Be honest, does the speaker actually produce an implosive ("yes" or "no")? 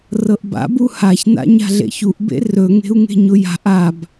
no